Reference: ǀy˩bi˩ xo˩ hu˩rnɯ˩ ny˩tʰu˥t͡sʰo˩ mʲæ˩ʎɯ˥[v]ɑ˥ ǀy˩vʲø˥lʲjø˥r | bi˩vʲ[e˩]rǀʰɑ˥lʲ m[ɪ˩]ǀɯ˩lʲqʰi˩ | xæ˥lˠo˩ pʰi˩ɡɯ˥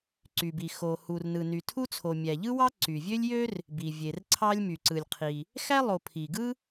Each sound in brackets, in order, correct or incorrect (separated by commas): incorrect, correct, incorrect